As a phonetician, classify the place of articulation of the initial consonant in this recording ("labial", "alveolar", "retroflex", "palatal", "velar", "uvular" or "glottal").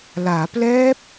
alveolar